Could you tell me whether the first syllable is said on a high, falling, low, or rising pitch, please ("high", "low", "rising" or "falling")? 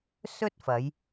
high